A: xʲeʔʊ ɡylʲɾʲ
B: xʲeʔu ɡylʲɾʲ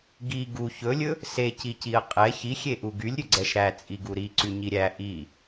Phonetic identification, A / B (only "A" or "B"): B